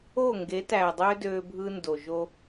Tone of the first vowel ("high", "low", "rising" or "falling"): falling